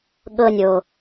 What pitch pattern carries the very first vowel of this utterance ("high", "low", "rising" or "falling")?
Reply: high